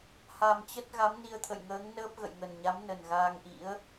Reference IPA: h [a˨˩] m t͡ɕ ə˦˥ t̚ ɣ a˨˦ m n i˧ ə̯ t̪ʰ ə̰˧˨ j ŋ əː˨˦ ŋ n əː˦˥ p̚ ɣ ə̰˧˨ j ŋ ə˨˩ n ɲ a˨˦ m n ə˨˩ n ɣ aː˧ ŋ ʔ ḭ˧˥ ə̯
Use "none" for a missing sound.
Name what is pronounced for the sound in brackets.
a˨˩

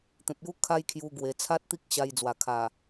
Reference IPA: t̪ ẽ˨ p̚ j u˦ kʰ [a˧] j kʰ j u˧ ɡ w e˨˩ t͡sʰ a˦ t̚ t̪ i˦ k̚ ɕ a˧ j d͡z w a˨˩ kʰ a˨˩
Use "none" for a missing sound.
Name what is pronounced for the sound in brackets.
a˦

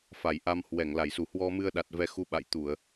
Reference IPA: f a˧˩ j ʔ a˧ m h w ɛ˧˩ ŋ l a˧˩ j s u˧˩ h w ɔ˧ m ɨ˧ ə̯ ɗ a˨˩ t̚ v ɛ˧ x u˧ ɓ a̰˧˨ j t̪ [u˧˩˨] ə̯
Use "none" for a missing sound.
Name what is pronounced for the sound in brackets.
u˧˩˨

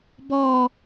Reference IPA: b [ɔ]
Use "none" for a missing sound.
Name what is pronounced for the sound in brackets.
ɔ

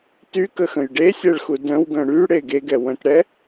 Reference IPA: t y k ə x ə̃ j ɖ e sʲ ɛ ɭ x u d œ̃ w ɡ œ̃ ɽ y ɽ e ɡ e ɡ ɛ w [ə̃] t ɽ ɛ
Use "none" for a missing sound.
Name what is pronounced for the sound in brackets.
œ̃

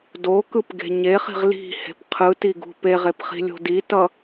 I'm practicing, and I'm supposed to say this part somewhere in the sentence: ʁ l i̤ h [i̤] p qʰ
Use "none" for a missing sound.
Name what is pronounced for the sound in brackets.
e̤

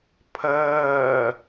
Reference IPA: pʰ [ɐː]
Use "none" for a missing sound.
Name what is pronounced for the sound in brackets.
ɐː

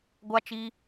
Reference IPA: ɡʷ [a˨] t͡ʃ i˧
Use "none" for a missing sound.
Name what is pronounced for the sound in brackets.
a˦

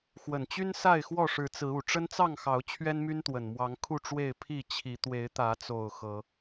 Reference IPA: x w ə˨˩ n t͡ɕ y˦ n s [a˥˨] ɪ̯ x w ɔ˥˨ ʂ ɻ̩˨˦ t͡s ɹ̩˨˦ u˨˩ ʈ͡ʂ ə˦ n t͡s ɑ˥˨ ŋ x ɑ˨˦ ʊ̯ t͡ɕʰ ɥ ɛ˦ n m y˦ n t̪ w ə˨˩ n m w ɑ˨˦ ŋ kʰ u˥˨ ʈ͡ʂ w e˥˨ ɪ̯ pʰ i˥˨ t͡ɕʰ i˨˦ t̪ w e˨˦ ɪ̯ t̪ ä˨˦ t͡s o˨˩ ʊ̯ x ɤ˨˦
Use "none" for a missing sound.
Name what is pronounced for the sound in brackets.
a˥˨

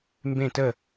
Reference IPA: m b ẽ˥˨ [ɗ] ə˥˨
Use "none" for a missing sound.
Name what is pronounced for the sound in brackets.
t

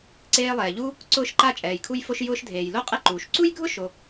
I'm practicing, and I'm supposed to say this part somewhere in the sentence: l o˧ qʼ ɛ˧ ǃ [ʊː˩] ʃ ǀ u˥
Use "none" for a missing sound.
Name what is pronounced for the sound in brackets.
uː˩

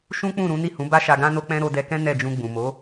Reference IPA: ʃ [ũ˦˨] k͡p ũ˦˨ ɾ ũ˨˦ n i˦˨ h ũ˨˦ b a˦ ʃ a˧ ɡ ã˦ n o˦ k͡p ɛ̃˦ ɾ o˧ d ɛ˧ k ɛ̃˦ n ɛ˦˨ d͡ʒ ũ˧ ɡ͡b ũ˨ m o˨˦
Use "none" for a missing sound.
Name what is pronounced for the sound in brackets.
ũ˦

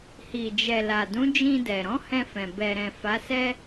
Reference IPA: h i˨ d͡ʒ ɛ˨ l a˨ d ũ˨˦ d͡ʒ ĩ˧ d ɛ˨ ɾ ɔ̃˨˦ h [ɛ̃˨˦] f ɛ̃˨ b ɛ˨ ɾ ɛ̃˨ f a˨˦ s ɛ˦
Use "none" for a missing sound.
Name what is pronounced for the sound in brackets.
ɛ̃˧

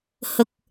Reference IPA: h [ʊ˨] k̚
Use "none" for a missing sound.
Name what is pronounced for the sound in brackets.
ʊ˨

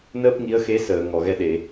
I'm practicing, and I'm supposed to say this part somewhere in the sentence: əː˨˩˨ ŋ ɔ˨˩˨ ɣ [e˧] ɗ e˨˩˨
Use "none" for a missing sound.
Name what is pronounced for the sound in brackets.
ɛ˧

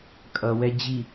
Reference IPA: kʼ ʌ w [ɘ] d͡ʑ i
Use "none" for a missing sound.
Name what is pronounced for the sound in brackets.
ɛ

